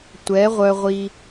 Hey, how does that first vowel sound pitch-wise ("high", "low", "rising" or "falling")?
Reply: rising